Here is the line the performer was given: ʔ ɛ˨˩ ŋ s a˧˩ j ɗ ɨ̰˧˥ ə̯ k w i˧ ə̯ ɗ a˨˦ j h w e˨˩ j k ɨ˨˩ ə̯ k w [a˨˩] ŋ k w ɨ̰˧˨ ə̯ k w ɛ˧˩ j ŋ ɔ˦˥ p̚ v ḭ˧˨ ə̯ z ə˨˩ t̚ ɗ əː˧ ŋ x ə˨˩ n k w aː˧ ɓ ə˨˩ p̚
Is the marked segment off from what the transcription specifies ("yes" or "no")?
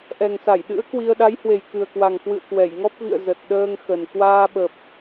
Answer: no